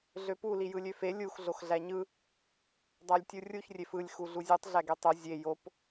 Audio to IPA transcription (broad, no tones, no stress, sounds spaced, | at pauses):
ɮ ø p u l i j ɯ lʲ ø f e lʲ u x ɮ o x ɮ æ ɲ ɯ | dˤ æ lʲ tʲ u rʲ u ç rʲ e f ɯ lʲ x u ɮ u zʲ u tˤ ɮ æ ɡ e tˤ ø zʲ e j o p